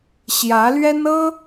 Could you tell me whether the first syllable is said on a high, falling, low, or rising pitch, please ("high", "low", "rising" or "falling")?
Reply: rising